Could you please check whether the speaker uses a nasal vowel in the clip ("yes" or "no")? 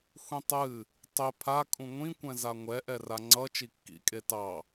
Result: yes